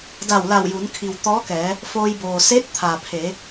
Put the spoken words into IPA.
d a˧˩ w l a˧˩ w j u˩˧ n kʰ i˩ w t̪ ɔː˧˥ k ɛː˩˧ | f oː˧ j b oː˩ s e˧˥ t̚ t̪ʰ aː˩ pʰ eː˩˧

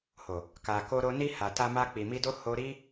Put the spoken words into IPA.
h o˨ | k a˨ k o˧ ɾ o˧ n i˧ h a˨ t a˧ m a˧ k͡p i˨ m i˧ d o˦ h o˧ ɾ i˦

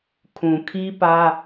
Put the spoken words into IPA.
kʰ ũ˨ kʰ i˦ p ä˦

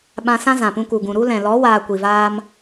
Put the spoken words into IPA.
ɓ ã˧ s ã˦ z ã˨ p ũ˧ k u˨ ɡ ũ˨ ɾ u˧ l ɛ̃˨ l ɔ˨˦ w aː˧ kʷ i˨ v aː˦ m

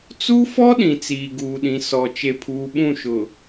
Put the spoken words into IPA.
t͡s u˦ f ɔ˦ ɗ ĩ˨ t͡s iː˨ ɡ uː˨ ɗ ĩ˨ s ɔ˨ t͡ʃ e˨ pʰ uː˨ ɓ ũ˦˨ ʃ ʊ˨

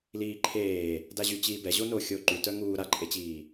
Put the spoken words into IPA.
l iː ǃʰ eː | d a ʑ y t͡ɕ iː b ɛ ʑ o n o xʲ o ǃ y t œ ŋ uː ɾ a ǃʼ e t͡ɕ iː

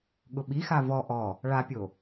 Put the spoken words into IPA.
ɠ ʊ ɓ i x a v ɔ ʔ ɔ | ɭ a pʲ o

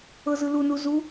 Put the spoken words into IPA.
ɤ z ɯ l u n u z u

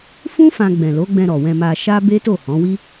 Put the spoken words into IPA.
f ũ˦ f ã˧ ɡ͡b ɛ̃˨ l o˨˦ ɡ͡b ɛ̃˧ ɾ ɔ˨ w ɛ̃˧ m a˧ ʃ a˦ b e˦ t o˦˨ h ɔ̃˨˦ w i˦

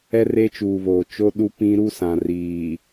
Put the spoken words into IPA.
ɛ˦ r e˦ t͡ʃ uː˨ β oː˨ t͡ʃ o˦ ɗ u˦ p ĩ˦ ɾ u˦ s ã˨ r iː˨

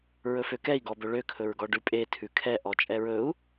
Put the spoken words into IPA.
ɹ ɵ f ø k ɛ i̯ ɡ ɔ b ɵ ɭ ø kʰ ɵ ɹ ɡ ɔ ɖ ʉ pʼ e tʰ ʉ kʰ ɛ ʔ ɔ t͡ʃʼ ɛ ɹ ɵ u̯

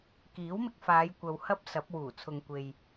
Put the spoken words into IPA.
k iː˨˥ w m ɪ˧ k̚ f aː˨˧ j kʷ ɐ˧ w h ɐ˥ p̚ s ɐ˨˥ p̚ w uː˨˩ t͡sʰ ʊ˨ ŋ kʷ e˨ j

